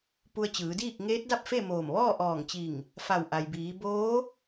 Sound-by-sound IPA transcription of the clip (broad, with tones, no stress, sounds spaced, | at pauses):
p u˧ ə̯ t͡ɕ ɯː˩˧ d iː˥˨ k̚ ŋ eː˧˥ t̚ d a˥˨ p̚ f e˥˨ m oː˧˩ m ʋ ɔː˥˨ ʔ ɔː˧˩ ŋ t͡ɕ i˧˩ ŋ | f a˧˩ w ʔ a˩ j b iː˩˧ b oː˧˥